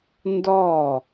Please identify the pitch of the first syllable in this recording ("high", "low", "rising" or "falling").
falling